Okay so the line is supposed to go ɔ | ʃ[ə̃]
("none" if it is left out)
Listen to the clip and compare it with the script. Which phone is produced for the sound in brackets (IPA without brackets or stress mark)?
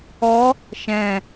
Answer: ɛ̃